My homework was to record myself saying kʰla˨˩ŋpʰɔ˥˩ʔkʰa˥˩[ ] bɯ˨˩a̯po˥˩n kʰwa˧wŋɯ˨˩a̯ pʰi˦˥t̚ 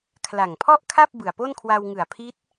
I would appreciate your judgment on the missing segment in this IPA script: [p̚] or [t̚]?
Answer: p̚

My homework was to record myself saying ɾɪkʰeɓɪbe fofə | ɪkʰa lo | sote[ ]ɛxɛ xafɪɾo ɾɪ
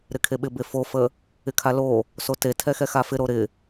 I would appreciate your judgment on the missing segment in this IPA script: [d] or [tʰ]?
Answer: tʰ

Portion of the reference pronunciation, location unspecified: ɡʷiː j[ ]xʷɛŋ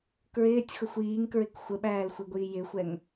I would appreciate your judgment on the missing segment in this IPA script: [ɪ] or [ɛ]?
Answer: ɪ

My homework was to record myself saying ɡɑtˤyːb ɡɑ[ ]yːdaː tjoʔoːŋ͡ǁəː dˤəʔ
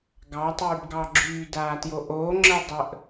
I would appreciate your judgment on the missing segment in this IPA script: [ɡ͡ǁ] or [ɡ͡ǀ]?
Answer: ɡ͡ǁ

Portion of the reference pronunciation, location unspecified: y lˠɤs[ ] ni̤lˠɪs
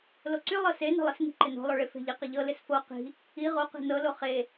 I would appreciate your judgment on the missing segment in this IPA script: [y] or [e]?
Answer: e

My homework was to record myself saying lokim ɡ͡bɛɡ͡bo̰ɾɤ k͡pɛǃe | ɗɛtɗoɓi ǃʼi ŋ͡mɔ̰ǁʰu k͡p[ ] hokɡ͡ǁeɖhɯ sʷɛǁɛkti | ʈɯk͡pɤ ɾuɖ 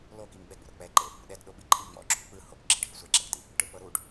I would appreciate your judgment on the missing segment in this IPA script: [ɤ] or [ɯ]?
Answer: ɯ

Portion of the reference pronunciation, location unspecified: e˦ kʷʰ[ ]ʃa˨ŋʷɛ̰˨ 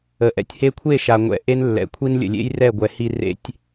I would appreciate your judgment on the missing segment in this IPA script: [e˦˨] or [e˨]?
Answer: e˦˨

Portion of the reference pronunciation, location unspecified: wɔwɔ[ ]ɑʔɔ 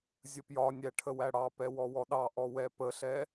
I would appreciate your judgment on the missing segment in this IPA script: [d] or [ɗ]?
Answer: ɗ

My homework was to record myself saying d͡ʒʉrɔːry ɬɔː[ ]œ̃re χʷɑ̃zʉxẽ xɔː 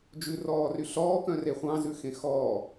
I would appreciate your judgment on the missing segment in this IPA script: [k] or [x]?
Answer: k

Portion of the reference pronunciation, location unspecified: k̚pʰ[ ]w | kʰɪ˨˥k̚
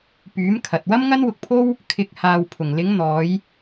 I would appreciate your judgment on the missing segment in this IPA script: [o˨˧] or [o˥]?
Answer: o˥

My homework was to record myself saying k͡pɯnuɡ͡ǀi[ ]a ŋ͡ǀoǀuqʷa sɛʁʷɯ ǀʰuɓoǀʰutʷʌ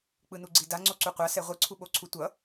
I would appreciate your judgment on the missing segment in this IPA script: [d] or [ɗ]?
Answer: d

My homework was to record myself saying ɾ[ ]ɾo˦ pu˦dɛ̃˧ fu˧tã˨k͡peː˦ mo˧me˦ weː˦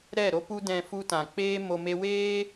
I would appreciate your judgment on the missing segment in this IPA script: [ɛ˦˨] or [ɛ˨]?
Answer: ɛ˦˨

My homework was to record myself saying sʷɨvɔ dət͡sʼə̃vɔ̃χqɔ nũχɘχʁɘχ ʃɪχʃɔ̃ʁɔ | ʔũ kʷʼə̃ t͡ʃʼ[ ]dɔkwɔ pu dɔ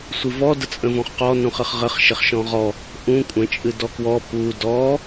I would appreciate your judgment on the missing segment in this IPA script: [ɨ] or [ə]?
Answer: ɨ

